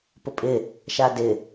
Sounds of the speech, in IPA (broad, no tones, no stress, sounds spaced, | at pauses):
p ʊ pʼ ɪ | ʃ a d ɪ